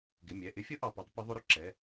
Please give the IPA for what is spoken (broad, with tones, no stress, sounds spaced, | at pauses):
ɡ ɪ˩˧˩ mʲ ɛ˩˧˩ ʔ ɪ˧˥ fʲ ʊ˧˥ ʔ ɑ˩˧˩ p ɑ˧˥ tˤ p ə˧˥ ðˤ ʊ˧˥ ɾ ʊ˧˥ ǁ ɛ˩˧˩